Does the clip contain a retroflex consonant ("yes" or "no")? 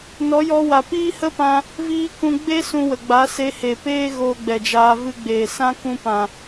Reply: no